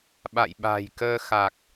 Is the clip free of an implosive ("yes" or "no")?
no